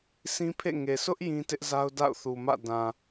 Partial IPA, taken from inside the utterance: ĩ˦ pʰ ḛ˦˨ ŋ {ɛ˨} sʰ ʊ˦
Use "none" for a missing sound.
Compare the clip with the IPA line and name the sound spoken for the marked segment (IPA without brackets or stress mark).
e˨